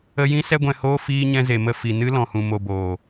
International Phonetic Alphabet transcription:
ə˧ j ĩ˦ s ɛ˦ ɡʷ ɛ̃˧ h oː˦ f iː˦ ɲ ɛ̃˦ z e˨ m ə˦˨ f i˨ n ɨ˦ l ɔ̃˨ h ũ˨ m o˧ b oː˨

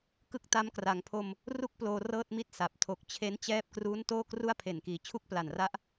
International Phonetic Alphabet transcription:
k ɯ˥˩ k̚ t a˦˥ m k r a˩˦ ŋ pʰ o˧ m | r u˥˩ k̚ p l oː˧ r ɤː˥˩ t̚ m i˥˩ t̚ s a˨˩ p̚ tʰ o˨˩ k̚ t͡ɕʰ e˦˥ n t͡ɕ ɛː˦˥ p̚ k r uː˦˥ n t oː˥˩ k r u˥˩ a̯ pʰ e˨˩ n k iː˨˩ t͡ɕʰ u˥˩ k̚ p l a˨˩ n r a˦˥ ʔ

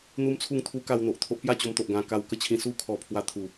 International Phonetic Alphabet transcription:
n̪ u˦ m t͡sʰ u˥˧ ŋ t̪ʰ u˦ k a˧ w n̪ o˨ ʔ t̪ʰ o˦ ʔ p j a˥˧ t͡ɕ o˧ m t̪ o˨ ʔ ɡ ã˧ k a˧ w k ə˦ t͡ɕʰ ĩ˧ s u˥˧ kʰ ɔ˧ pʰ w a˧ t̪ʰ u˨˩

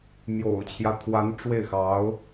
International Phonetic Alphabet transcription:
m j o̰˨˩ ʊ̯ t͡ɕʰ j ä˦ t̪ʰ w a˧˥ n ʈ͡ʂ w e˥˩ ɪ̯ x ɑ˧˥ ʊ̯

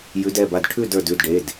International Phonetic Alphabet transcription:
j ʉ˨˦ d ɛ˩˧˩ b a˧˩ d ʈʰ ʉ˥˨ d ə˞˧˩ d ʉ˩˧˩ d ɖ e˩˧˩ d

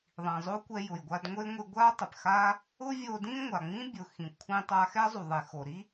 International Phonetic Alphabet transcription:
ðˤ ĩ˩ zˤ o˥ kʷ ɛ˧ j ʊ˩ j ɡʷ a˧ d ŋʷ e˥ ŋʷ i˧ ɡʷ a˥ tˤ ɪ˩ p x a˥ | ʊ˥ vʲ o˧ d ĩ˥ ŋʷ a˩ ŋ͡m ĩ˥ bʲ ʊ˩ x ĩ˩ kʷʰ ĩ˧ tˤ a˧ x ɛ˥ zˤ u˩ ðˤ e˩ x o˩ ɾ i˥

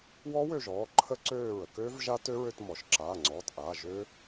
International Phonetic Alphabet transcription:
w ɔ˦˥ w ø˦˨ ʒ ɔː˩˧˩ ǃʰ ə˦˥ ǀ øː˦˨ ɹ ə˩ k øː˦˥ v ʒ a˦˥ t ø˦˥ ɹ ø˦˨ t m ɔ˩ ʃ ǁ aː˩˧˩ ŋ͡ǀ ɔː˩˧˩ t ʔ aː˩˧˩ ʒ ø˦˥

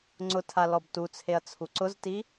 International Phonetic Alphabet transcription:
ŋ͡ǀ ʊ tʰ a l ɔ b t u t͡sʰ e ɐ̯ t͡sʰ u ǀ ʊ z t i

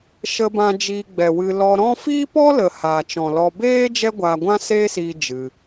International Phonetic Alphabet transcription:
ʃ ə˧ b ã˧ d͡ʒ iː˧ ɡ͡b ɛ˨ w ɨ˧ l ɔ˧ ɾ ɔ̃˦ f iː˦ p ɔ˦ l ə˨ h aː˨ t͡ʃ ɔ̃˨ l ɔ˧ b eː˦ d͡ʒ ɛ˦ ɡʷ aː˧ ɡʷ ã˦ s eː˦ s iː˧ d͡ʒ ɨ˧

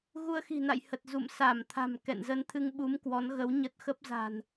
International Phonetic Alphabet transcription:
ɣ u˧ ə̯ x i̤˨˩ n a̰˧˨ j h ə˨˩ t̚ z ṵ˧˨ m s a˧˩ m t̪ʰ a̤˨˩ m k ɛ̰˧˨ n z ə˧ n t̪ʰ ɨ˧ ŋ ɓ u˨˦ m k w ɔ˨˦ n ɣ ə˨˦ w ɲ ə˦˥ t̚ x ə˦˥ p̚ z a̤˨˩ n

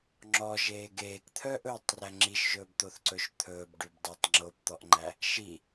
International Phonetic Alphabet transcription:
ŋ͡ǁ ɔ ʒ eː ɡ eː k t̪ʰ œ ʔ ɵː tˤ r æ ŋ͡ǁ i ʃ ʒ ɵː b t̪ o θ ǀ ɵ ʃ t̪ʰ ɵː b ɖ ʉ b dˤ æ tˤ ŋ͡ǁ o b t̪ ɔ ʔ ŋ͡ǃ æ | ʃ i

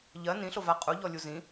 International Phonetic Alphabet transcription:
ʎ ɜ n ĩ ɬ o v a qʼ u ʎ ɔ lʲ u z ĩ

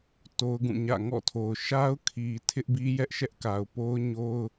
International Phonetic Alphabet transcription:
t o˦ ʊ̯ ɡ ũ˦˨ ɲ ä̰˦˨ ŋ ɔ̰˦˨ tʰ o˨ ʊ̯ ʃ a˦ ʊ̯ kʰ i˨ tʰ ɪ˦ ʔ b i˦ j ɛ˦ ʔ ʃ ɛ˦ ʔ k a˨ ʊ̯ p o˦ ʊ̯ ɲ o˦ ʊ̯

